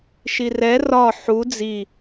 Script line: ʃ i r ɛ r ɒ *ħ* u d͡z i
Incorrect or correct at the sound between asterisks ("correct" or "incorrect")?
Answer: correct